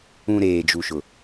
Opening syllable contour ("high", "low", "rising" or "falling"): low